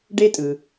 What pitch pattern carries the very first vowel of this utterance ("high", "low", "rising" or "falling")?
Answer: high